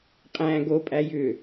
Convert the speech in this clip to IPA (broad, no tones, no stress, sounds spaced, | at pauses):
qʼ æ̃ ɡ o pʼ æ j ʏ